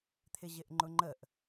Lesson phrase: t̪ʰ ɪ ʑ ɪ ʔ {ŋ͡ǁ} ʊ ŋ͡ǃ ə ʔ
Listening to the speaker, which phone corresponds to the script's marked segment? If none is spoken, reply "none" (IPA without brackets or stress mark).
ŋ͡ǃ